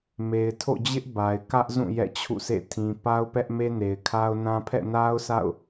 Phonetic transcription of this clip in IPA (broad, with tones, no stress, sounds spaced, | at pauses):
m e˨ ɪ̯ tʰ o̰˦˨ d͡ʑ ɪ˦ ʔ b a˨ ɪ̯ k ä˦ ʔ z ũ˦˨ j ɛ̰˦˨ t͡ɕʰ ṵ˦˨ s ḛ˦˨ tʰ ĩ˨ p a˦ ʊ̯ p ɛ˦ ʔ m e˦ n e˨ ɪ̯ kʰ a˦ ʊ̯ n ã˦ pʰ ɛ̰˦˨ n a˦ ʊ̯ s a̰˦˨ ʊ̯